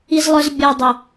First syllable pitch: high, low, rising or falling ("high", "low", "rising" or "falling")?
low